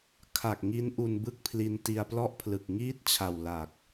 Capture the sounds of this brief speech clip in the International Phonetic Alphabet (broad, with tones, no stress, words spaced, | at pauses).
kʰa˨˩k̚ŋi˦˥n ʔu˧nbɯ˥˩k̚pʰli˧n ti˧a̯plɔ˥˩ʔpʰlɯ˨˩k̚ ŋiː˥˩t̚t͡ɕʰa˨˩w la˨˩k̚